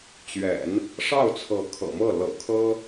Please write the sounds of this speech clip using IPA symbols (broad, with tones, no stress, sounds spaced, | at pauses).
t͡ɕ ɥ ɛ̰˨˩˦ n | ʂ ɑ˥˩ ʊ̯ t͡sʰ ɤ˧˥ kʰ ɤ̰˨˩ m ɤ˥˩ l ɤ̰˨˩ kʰ ɤ˥